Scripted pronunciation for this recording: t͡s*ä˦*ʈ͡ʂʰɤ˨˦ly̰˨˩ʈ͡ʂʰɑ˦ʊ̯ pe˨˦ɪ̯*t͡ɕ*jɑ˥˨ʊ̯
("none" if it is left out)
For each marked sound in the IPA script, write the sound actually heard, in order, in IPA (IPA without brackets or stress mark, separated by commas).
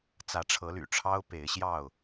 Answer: ä˨˦, ɕ